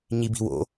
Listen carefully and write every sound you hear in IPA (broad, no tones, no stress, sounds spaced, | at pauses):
ɲ i b i̤ w o̰